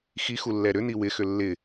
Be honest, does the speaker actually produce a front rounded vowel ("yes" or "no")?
yes